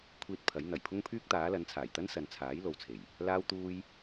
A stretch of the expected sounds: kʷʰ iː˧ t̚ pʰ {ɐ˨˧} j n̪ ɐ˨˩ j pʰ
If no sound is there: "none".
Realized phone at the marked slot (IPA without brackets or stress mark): ɐ˨˥